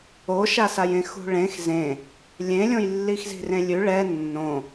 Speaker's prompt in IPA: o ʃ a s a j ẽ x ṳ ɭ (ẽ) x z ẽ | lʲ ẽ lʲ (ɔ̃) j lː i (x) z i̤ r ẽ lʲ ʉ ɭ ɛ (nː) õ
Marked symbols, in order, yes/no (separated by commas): yes, no, yes, yes